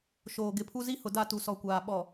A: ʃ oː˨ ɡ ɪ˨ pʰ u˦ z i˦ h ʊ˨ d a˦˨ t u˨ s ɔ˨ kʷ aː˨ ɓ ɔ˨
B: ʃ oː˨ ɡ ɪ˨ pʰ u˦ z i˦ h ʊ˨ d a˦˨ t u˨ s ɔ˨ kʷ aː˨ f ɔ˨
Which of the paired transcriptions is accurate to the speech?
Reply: A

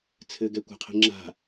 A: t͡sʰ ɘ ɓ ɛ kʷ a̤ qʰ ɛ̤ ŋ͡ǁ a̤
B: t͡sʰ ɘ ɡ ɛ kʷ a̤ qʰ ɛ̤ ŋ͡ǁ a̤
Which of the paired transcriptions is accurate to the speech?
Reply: B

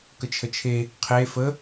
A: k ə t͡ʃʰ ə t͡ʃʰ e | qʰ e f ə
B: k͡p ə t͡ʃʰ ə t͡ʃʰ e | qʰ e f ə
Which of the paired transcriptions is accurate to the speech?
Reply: A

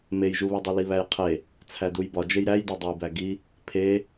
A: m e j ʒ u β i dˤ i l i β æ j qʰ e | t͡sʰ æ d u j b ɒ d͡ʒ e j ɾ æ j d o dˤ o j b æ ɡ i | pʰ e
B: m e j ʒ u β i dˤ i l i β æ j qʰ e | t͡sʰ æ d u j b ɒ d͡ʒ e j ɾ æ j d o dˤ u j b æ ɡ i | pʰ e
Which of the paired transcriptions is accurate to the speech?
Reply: A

